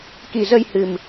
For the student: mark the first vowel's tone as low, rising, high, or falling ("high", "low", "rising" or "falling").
low